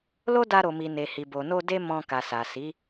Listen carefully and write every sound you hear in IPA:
l o˦ d a˧ ɾ o˨ m i˨ n e˨ h i˨ b o˨ n o˧ d e˦ m ɔ̃˧ k a˨ s a˨ s i˨˦

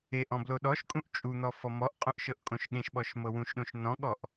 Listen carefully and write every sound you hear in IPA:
e ʔ ɔ̃ b l o ɗ ɔ ʃ kʼ ũ ʔ t͡ʃʼ u n̪ ɔ f ɔ m ɔ ʔ qʼ õ ʔ ʃ ɤ ʔ kʼ õ ʃ ɠ ẽ ʃ ɓ ɔ ʃ m ɤ w ũ ʃ ɗ õ ʃ n ɔ̃ ɠ ɔ ʔ

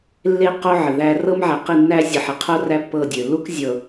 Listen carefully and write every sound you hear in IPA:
lː e˦ q o˦ ʕ ə˨ ð æ˦ r ɤ˦ m ʕ æ˨ q i˦˨ nː æ˦ zʲ ɤ˨ ħ e˨ qʰ o˦ r æ˦ pː ɤ˦˨ dʲ ø˨ l u˦ k zʲ ɤ˨

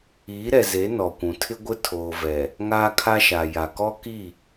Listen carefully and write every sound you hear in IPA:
iː˨˦ ɾ ɛ˨ z e˨˦ n ɔ˨ kʷ ũ˨ tʰ ɪ˦ ɡʷ ɪ˦ tʰ oː˨ v ɛ˨ | ŋ aː˦ kʰ a˦ ʃ a˨ j a˨ k ɔ˦ k i˦˨

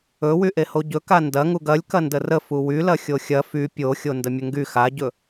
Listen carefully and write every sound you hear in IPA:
ɵ w y ʔ e h o ɟ ɵ k a n d ɐ ŋ u ɡ ɐ lʲ k ɐ n d ə r ə f u w y l ɐ xʲ o xʲ ɐ f y pʲ o xʲ o n d ə mʲ ə ŋ ɡ y x a ɟ ɵ

